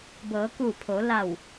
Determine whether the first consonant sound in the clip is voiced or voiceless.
voiced